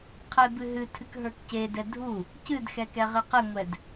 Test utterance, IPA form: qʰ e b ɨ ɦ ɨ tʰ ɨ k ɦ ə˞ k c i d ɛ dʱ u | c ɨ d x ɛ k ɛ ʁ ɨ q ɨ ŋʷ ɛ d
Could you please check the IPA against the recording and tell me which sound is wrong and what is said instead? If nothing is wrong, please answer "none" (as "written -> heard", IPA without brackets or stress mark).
i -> e